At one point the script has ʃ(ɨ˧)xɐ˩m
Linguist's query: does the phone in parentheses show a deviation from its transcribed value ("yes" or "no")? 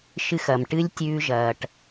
no